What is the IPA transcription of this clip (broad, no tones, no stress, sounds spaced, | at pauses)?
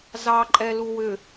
z ɑ ǃʼ ɛ l u w ʏ